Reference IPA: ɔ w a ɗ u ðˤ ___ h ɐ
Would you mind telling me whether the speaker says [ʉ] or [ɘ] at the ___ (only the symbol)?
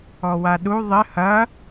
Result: ɘ